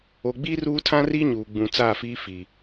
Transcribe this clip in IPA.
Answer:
o˨ ɡ͡b i˦ r uː˦ tʰ ã˦ r i˦ ɲ uː˨ ɡ͡b ũ˨ t͡s aː˦˨ f iː˦ f iː˨

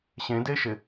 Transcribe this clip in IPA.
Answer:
ɕ ẽ d e ʃ ɪ

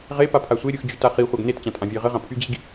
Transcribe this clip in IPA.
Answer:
ʁ e p a pʰ a sʷ e ɾʲ ɯ x d͡ʑ y t a χ i χʷ a ɡ n e t t͡ɕ ã tʼ ã vʲ eː ʁ ɘ ʁ ã pʰ y d͡ʑ i ɡ

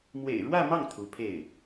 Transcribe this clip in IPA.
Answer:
m w ḛ˨˩ ɪ̯ ɻ w ä˥˧ m ɑ˥˩ ŋ t̪ʰ u˧˥ pʰ e˥˩ ɪ̯

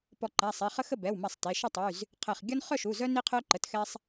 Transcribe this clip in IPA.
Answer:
p ɔ˧˩ ǃ a˩˧˩ sˤ e˩˧˩ χ ə˦ x ə˥˨ b ɛ˩˧˩ w m a˧˩ sˤ t e˩˧˩ ʃ ə˥˨ tˤ y˩˧˩ z | qʰ ɛ˧˩ χ ɡʲ ɔ˦ n χ œ˥˨ ʃ u˩˧˩ z œ˦ n i˦ qʰ œ˦ ǃ ə˩˧˩ t x ɛ˦ sˤ

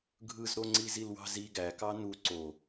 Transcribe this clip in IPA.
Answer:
ɡʱ ɯ z ɾ o ŋ͡ǀ i z i l w ɑ̤ z i ɡ æ k ɑ n u ǀ o

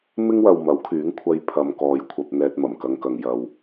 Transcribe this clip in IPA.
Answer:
m ɪ˥ ŋ w ɐ˨ w m ɐ˨˥ w kʰ yː˨˥ ŋ kʷʰ ɐ˧ j pʰ ɐ˨ m k ɔː˨ j kʷʰ ɐ˧ p̚ n̪ ɛː˧ t̚ m ɐ˨˩ m k ɐ˧ ŋ k ɐ˨ ŋ j ɐ˨ w

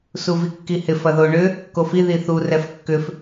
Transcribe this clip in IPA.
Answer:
s u v i kː i h ɪ f ɐ ð o ɳ ʏ | k o f i ð i θ u r ɛ f kː ʏ f

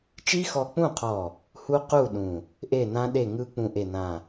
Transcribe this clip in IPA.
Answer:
t͡ʃ i˦˥ x ɔ˧ k͡p ũ˥˨ qʰ ɔ˧˩ | h u˦˥ q u˥˨ ɗ ũ˧˩ | ʔ e˥˨ n ã˦˥ ɗ e˥˨ ŋ ɯ˦˥ k͡p ũ˥˨ ʔ e˥˨ n ã˥˨

